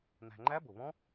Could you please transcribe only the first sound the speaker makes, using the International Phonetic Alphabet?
n̪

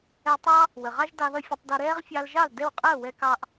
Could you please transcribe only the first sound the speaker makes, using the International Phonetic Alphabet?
ɛ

